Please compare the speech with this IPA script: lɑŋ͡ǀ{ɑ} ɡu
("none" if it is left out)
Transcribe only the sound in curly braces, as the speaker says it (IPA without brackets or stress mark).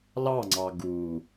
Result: ɑ